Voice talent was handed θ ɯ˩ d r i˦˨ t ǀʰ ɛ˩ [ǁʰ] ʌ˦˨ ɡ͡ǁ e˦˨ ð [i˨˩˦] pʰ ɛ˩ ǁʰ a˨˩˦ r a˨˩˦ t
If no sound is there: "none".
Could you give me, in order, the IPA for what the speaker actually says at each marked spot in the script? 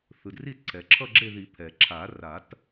ǁʰ, i˨˩˦

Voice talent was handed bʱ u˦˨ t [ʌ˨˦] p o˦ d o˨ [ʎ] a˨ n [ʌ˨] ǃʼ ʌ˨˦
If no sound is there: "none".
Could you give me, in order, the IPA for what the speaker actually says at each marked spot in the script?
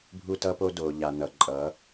ʌ˦, ʎ, ʌ˨

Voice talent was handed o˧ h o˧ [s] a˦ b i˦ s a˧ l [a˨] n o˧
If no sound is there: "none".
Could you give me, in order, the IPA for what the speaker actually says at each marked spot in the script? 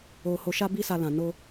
ʃ, ã˨

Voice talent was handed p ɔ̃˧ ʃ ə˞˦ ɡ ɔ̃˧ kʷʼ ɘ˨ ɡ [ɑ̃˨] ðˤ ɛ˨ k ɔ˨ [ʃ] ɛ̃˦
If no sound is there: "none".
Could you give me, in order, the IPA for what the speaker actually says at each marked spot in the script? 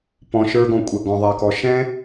ɔ̃˨, ʃ

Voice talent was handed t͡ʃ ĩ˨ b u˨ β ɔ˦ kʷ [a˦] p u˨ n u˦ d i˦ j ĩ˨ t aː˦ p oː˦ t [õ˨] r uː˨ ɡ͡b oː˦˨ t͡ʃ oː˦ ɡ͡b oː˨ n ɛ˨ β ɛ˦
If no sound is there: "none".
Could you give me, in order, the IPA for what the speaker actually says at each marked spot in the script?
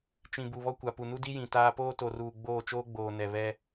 a˨, o˨

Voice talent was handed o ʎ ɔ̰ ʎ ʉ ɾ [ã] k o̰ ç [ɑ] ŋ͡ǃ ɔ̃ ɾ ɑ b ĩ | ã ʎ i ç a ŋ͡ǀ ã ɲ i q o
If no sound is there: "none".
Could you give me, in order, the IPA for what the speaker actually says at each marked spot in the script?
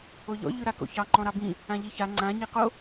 a, ɑ

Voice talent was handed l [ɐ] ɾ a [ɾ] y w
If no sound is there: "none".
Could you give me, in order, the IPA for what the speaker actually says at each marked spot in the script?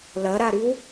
ɐ, ɾ

